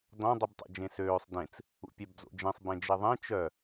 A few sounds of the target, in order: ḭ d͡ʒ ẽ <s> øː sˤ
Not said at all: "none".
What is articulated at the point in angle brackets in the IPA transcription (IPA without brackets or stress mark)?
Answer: s